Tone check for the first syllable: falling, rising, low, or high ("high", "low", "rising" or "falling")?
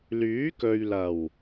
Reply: rising